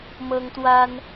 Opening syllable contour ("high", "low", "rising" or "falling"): high